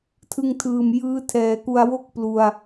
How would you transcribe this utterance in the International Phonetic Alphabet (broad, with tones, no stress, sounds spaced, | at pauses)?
tʰ ɯ˧ ŋ tʰ ɯː˨˩ m j ɯː˦˥ tʰ ɛː˩˦ k u˧ a̯ w o˥˩ k̚ p l u˧ a̯